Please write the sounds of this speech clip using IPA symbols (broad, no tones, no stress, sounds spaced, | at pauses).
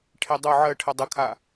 ʈʰ e dˤ o ʕ ɜ ʈʰ ə dˤ ə kʰ a